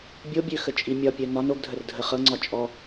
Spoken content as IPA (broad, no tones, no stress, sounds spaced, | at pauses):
bʲ o bʲ ø x ə t͡ʃʼ i mʲ ɒ pʲ œ n ɒ n o ɡ dʱ ə r dʱ ə χ ɤ ŋ͡ǀ ɒ t͡ʃʼ ɔ